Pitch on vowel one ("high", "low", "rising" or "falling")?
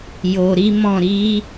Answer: low